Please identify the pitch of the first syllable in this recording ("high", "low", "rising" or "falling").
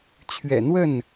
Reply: low